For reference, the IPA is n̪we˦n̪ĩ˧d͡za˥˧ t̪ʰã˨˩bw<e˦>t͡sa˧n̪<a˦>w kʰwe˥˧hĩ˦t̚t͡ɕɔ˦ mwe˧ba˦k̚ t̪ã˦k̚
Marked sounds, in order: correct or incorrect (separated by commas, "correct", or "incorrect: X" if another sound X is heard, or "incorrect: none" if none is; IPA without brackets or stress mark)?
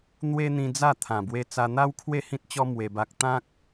incorrect: e˧, correct